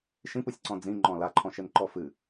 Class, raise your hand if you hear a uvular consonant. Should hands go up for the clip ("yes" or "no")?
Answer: no